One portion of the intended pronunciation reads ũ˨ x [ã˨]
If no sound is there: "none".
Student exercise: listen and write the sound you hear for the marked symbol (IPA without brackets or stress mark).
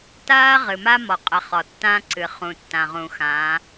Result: ã˨˦